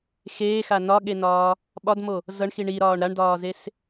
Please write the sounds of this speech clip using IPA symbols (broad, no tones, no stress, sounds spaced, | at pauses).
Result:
x eː x a n ɒ ɠ e n ɒː | ɓ ɒ d m o | z ʌ ɳ x i ɳ i ɾ ɒː ɳ ɾ a ɳ d ɒː z e s